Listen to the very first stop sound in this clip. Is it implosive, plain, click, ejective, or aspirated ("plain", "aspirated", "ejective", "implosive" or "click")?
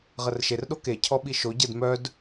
implosive